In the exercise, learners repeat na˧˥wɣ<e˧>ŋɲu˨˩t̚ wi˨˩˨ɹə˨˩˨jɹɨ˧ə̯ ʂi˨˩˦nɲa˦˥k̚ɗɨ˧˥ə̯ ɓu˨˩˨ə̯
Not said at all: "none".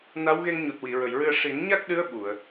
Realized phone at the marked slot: e˧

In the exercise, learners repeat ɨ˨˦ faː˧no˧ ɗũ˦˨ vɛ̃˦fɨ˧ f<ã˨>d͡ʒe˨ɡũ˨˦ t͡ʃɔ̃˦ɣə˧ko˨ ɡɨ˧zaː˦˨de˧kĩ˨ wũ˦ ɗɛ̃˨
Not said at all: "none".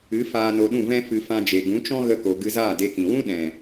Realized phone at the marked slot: ã˧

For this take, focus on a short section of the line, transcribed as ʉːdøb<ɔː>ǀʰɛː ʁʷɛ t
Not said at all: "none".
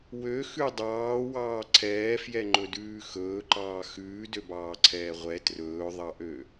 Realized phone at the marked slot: ɑː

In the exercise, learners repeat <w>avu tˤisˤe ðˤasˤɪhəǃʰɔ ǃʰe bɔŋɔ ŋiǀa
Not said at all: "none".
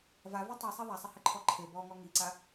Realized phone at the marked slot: v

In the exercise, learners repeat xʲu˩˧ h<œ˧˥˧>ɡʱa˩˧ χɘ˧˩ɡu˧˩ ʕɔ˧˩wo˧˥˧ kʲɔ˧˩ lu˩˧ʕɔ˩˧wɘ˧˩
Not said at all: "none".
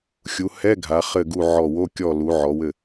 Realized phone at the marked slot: ɛ˧˥˧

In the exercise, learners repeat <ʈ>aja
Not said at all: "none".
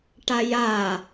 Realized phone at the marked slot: ʈ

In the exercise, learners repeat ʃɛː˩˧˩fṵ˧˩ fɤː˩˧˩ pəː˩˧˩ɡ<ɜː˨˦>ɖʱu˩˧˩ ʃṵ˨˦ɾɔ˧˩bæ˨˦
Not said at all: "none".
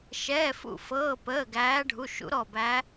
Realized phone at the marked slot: æː˨˦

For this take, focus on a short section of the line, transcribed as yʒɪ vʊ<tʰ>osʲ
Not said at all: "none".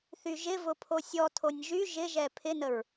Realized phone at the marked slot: pʰ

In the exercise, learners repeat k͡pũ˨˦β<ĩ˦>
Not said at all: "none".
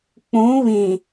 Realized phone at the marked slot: ĩ˨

